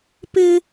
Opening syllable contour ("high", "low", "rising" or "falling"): high